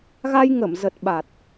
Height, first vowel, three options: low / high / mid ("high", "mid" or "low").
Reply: low